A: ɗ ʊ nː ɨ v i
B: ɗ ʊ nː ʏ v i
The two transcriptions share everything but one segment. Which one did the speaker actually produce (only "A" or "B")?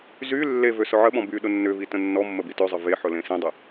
B